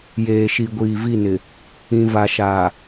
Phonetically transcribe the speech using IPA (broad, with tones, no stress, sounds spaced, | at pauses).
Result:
j eː˨ ʃ i˨ ɡʷ iː˨ v i˦˨ n ɪ˨ | ĩ˨ v a˨ ʃ aː˨